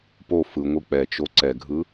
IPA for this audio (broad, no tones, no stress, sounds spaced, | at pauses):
p o f ɯ ŋʷ ɯ k͡p ɛ t͡ʃ o ǀ ɛ ɡʱ ɯ